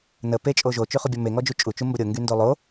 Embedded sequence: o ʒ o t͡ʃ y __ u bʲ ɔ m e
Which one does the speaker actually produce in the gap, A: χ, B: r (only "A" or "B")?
A